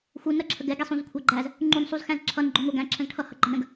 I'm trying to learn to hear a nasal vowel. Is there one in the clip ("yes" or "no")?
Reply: yes